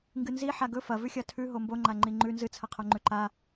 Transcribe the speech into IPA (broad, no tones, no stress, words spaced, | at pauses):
ŋɡɨnzi ħaɡɵ fɐvʉxʲɐ tʰʉɦo mboŋ͡ǃa ŋ͡ǃiŋ͡ǃʉ nzɨt͡sʰɐqʰoŋ͡ǃʉ ǃa